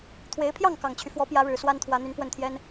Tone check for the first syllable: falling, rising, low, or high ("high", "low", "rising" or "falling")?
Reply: rising